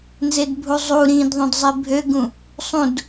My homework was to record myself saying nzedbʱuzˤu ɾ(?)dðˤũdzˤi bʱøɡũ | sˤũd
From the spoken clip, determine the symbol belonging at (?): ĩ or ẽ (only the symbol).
ĩ